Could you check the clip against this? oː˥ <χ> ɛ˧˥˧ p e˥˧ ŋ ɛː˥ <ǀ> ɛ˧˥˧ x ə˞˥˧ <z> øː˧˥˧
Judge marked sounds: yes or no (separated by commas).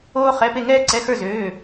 yes, yes, yes